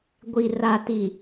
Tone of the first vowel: low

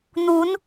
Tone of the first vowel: rising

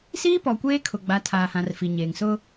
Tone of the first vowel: high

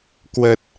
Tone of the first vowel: low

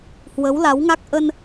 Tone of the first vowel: rising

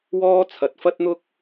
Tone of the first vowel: high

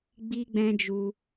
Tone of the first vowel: high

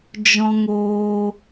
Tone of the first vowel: high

